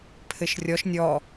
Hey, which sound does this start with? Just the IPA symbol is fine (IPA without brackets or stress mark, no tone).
pʰ